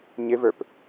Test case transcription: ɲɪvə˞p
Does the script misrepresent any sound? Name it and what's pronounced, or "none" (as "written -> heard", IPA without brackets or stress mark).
none